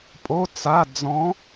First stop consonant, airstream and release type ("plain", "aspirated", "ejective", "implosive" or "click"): ejective